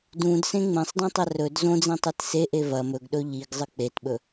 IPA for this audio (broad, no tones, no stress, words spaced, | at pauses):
dũdsẽ ŋ͡mẽsˤdɐ̃tˤɐ rɵd zõd͡zĩtˤet seʔe vɐ mɵɡɗɵ ʎiɡzˤɨ k͡petɓɵ